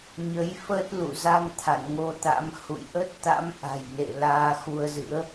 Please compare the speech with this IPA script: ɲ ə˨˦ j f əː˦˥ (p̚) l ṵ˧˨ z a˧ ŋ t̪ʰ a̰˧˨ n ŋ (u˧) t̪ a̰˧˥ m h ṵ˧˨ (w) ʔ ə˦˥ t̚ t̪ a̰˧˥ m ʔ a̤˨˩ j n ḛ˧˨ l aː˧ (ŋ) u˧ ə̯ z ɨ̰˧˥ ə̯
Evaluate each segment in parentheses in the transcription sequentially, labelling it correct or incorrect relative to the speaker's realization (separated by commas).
incorrect, incorrect, incorrect, incorrect